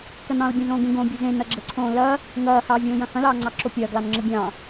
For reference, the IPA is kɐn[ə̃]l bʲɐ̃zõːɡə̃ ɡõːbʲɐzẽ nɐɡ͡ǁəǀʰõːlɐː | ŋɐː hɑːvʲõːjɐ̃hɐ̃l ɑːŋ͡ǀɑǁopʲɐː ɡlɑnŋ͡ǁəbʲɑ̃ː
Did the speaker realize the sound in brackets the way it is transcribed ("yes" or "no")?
no